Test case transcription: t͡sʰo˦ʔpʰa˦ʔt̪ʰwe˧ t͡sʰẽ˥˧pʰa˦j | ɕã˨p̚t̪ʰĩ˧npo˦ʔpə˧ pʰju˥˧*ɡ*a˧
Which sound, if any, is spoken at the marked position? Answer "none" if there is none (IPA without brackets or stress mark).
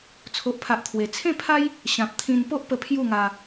ŋ